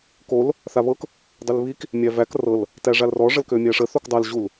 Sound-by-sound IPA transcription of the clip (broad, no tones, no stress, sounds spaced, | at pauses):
k o l | θ a β ɤ k | dˤ ø l β i k | mʲ æ v æ k r ɤ l | t æ ʐ a l r ɔ ʐ ə l k ø mʲ æ ʂ ə θ o k dˤ a l ʑ u l